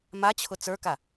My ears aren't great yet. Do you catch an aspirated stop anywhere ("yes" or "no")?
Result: yes